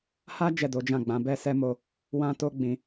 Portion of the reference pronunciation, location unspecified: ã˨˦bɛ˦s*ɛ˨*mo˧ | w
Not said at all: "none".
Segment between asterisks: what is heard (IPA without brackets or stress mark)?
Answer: ɛ˦